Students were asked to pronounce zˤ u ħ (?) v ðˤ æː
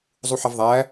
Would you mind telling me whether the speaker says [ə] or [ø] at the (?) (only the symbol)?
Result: ə